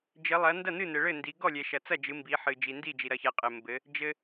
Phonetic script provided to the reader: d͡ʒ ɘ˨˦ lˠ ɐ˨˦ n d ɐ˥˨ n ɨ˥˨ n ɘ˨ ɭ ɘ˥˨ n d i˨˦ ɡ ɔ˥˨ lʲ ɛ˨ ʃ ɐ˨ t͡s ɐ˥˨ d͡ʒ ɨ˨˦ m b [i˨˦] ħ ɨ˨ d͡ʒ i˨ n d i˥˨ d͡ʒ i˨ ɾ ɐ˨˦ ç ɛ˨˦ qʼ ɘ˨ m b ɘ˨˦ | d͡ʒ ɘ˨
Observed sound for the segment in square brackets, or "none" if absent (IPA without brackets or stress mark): i˨˦